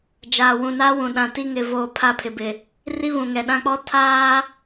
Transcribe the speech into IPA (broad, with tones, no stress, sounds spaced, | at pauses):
d͡ʒ aː˨ w ũ˨ n a˦ w ũ˨ ɗ ã˨ t i˦ ŋ ɪ˨ v oː˨ pʰ a˦ pʰ ɪ˨ b ɪ˨ | r i˦ β ũ˨ ŋ ɛ˨ ɗ ã˦ k͡p ɔ˦ tʰ aː˦